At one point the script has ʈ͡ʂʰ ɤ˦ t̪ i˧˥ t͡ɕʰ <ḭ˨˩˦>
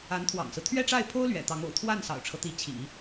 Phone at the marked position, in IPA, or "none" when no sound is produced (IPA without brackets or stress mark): ḭ˨˩˦